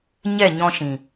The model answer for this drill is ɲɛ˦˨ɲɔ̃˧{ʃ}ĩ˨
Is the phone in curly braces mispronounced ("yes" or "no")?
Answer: no